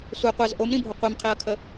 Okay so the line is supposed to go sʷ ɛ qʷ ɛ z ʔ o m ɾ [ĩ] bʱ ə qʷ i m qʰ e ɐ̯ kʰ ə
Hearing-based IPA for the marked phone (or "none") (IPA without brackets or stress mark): ĩ